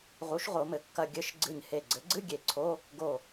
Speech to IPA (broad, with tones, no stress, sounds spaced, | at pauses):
ʁ u˩˥ ʃ ʁ o˩˧ m ɘ˩˧ kː ɐ˧˩ ɡʲ ɘ˧˥˧ ʃ ɡ͡ǀ ɨ˧˩ ɲ h e˧˩ ɡ͡ǀ ɘ˩˥ ɡ͡ǀ ɨ˧˥˧ ɡʲ e˧˩ ǀʰ o˧˥˧ | ɡ o˧˩